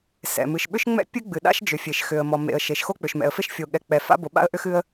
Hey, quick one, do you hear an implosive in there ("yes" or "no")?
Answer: yes